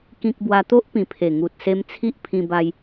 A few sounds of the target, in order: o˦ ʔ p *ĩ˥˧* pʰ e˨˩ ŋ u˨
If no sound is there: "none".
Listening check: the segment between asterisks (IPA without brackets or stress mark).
ĩ˨˩